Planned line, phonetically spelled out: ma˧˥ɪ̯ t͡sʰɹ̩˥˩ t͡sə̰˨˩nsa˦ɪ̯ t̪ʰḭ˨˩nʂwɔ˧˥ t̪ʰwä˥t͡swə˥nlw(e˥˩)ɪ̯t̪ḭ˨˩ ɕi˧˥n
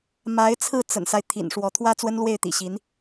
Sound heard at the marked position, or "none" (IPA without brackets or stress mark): e˥˩